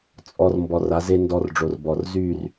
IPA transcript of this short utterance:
t͡sʼ ɔ˧ r m b ɔ˧ r a˨˦ z e˦ n d ɔ˧ r ɖ͡ʐ o˨ r b ɔ˨ r z y˦˨ r

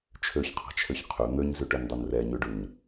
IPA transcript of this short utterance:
t͡ʃʰ ø ç qʰ ɑ̤ t͡ʃʰ ø ç qʰ ø n̪ ø ɲ z ʉ ʈ ø n dˤ o n r ɛ ɲ ʉ ɖ ʉ ɲ

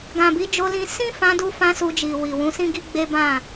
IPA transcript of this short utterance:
ɡ ã˨ b i˨˦ d͡ʒ o˧ l ĩ˧ s ĩ˦ f ã˧ d u˧ f ã˧ s u˧ d͡ʒ i˨ w i˨ w ũ˨˦ s ĩ˦ ɡ i˦ ɡ͡b e˦ b ã˦˨

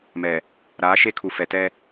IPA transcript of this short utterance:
m ɛ˨ | ɾ aː˨˦ ʃ e˦ kʰ u˨ f ɛ˨ t ɛ˦

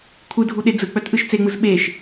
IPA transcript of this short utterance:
kʷʰ ɯ dʱ u ɗ e d͡z ɯ k͡p œ t ʔ ɯ ʃ t͡s e ŋ͡m ɯ z ɓ e ʃ

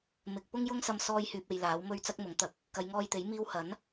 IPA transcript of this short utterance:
m ɪ˨ k̚ p ʊ˥ ŋ j ʊ˥ ŋ s ɐ˧ m s ɔː˧ j h yː˨ p̚ e˨ j l aː˨˥ w m ɵ˥ ɥ t͡s ɐ˥ k̚ m ʊ˨˥ ŋ t̪ ɐ˧ k̚ | k ɐ˨˧ j ŋ ɔː˧ j t̪ e˨˥ j m iː˧ w h ɐ˨˥ n

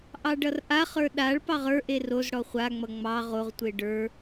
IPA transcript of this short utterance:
ʔ ɑ ɖ ʌ r ʔ a χ ə˞ ɗ a ɭ p ɑ ʁ ə˞ ʔ e r o z ɽ ɔ χʷ a ŋ͡m ʌ ŋ͡m ɑ ʁ o ʁ tʷ e ɖ ə˞

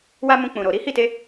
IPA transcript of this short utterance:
w a˦ m ũ˧ k͡p ũ˨ ɾ o˨ ɾ i˨˦ h i˦˨ t e˧

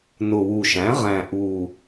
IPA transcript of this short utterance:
n ʊ˨˩ w u˨˩ ʃ æ̃˩˥ ʁ æ̃˨˩ ʔ u˨˩

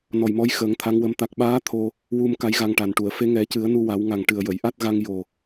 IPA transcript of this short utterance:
n ɔ˨˩ j m ɔ˧˥ j x əː˨˩˦ ŋ t̪ʰ a˧˥ ŋ w ə˧˥ m t̪ a˨˩ k̚ ɓ aː˧˥ t̪ʰ o˧ | w u˧ m k a˧˥ j ɣ a˧ ŋ ʈ a˨˩ n ʈ u˨˩˨ ə̯ f e˧˥ ŋ ɛ˨˩˦ c ɨ˨˩˦ ə̯ n u˧ w a˨˩˦ w ŋ a˨˩ ŋ ʈ ɨ˨˩ ə̯ j ə˨˩˨ j ʔ a˦˥ t̚ ɣ a˧ ŋ j o˨˩

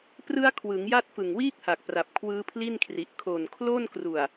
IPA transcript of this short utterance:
p r ɯ˦˥ a̯ kʰ w ɯ˩˦ ŋ j a˦˥ t̚ f ɯ˨˩ ŋ w iː˥˩ k̚ h a˨˩ k̚ p r a˨˩ p̚ kʰ w ɯː˦˥ pʰ l i˥˩ n kʰ r i˨˩ ʔ kʰ o˨˩ n kʰ l o˥˩ n k r u˨˩ a̯

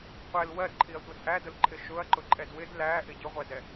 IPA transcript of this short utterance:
qʷ ɛ l w ɜ d ǃʰ i ɐ̯ tʷ ʌ d ʔ æ d ʊ l ǃʰ ɪ ʃ ʊ ɐ̯ ǃ ʊ ǃʼ ɛ d w ɪ d l æ ʔ ɪ ɟ ʊ ʁʷ æ d ɛ

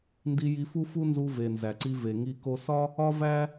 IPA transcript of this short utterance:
n d i˧ j i˧ f u˥ f u˥ n z u˧ v e˩ n z æ˩ ǀ i˧ v e˩ ŋ i˧ k o˧ s ɒ˥ | ɒ˥ v æ˥

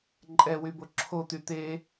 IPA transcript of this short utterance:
ǃʼ ɛ w y b o ǁʰ o t̪ y t̪ e

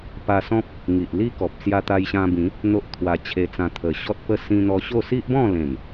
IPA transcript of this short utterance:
p a˧ s ɔ̃˦ p̚ | ŋ i˨ ʔ l i˦ k ɔ˨ p̚ s j a˧ t̪ a˧ j ɕ ã˧ b ĩ˨˦ | n̪ o˦ ʔ t̪ʰ w a˧ t͡ɕʰ e˧ t͡s ã˧ t̪ʰ ə˨˩ ɕ ɔ˦ t̚ p ə˥˧ s ĩ˧ n̪ ɔ˧ ɕ o˥˧ s i˦ ʔ b ɔ̃˥˧ l ẽ˨˩ m

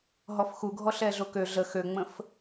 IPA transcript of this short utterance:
ɦ ɔ f x u ɡʱ ɔ ɬ ɛ ɮ o k ø ɮ ə x ø ŋ͡m ə̃ f

